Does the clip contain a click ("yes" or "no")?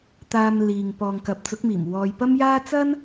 no